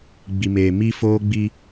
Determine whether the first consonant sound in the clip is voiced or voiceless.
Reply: voiced